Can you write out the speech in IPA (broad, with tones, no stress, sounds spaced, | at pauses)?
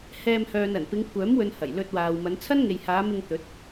h ɛː˧ m h œː˨ n ɐ˨˩ n p ɪ˨˧ ŋ kʷʰ œː˨˥ m w ɵ˨ n h ɐ˨˩ j l ɵ˧ t̚ w aː˨ w m ɐ˨˧ n t͡sʰ ɐ˥ n ŋ e˨ j h aː˨˧ m ɪ˧ ŋ t̪ ɵ˨˥ t̚